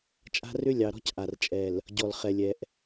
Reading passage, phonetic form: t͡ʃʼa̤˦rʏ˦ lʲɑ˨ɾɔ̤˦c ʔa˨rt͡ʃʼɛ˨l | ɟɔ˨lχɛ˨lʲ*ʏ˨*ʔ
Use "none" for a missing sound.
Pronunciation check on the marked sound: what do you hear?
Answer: ɛ˨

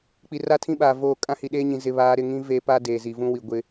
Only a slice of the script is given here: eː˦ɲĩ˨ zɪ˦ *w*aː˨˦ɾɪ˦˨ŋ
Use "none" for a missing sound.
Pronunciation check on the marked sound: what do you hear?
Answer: β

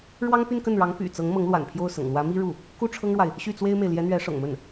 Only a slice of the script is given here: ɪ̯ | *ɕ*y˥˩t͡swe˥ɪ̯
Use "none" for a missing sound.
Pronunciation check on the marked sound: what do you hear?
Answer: ɕ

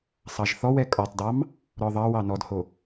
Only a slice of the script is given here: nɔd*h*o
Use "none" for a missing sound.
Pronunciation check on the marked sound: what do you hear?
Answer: h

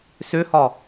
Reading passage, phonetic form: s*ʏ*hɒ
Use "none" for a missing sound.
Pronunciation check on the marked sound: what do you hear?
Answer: ʏ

